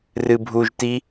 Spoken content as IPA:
r ɨ bʱ u ʒ t i

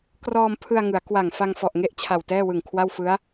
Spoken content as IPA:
k r ɔː˧ m pʰ ɯ˧ a̯ ŋ ɯ˩˦ a̯ k w a˨˩ ŋ f a˧ ŋ f ɔ˨˩ ʔ ŋ e˦˥ ʔ t͡ɕʰ a˨˩ w t ɛː˥˩ w ɯ˨˩ ŋ kʰ w a˥˩ w f ɯ˦˥ a̯

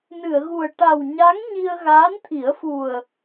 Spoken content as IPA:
n ɨ˨˩˨ ə̯ ɣ u˨˩ ə̯ ʈ a˨˩ w ɲ a˧˥ ŋ ɲ i˧ ə̯ ɣ aː˧˥ n t̪ʰ i˨˩˦ ə̯ f u˨˩ ə̯

